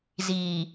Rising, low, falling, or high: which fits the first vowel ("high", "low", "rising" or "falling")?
low